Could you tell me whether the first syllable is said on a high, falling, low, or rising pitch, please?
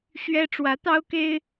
high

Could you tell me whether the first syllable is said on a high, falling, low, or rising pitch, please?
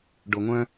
low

